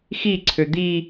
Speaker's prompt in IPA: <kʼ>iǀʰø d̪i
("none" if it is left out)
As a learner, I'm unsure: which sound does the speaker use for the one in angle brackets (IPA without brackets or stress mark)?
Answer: x